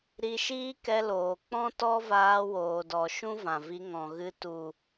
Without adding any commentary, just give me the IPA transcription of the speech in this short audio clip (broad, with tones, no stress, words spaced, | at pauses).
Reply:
ɾi˧ʃiː˦kɛ˧loː˨ k͡pɔ̃˦ tɔ˦vaː˧woː˨dɔ˨ ʃũ˦vã˨vi˧ ŋɔ̃˨ɣɨ˧ tu˨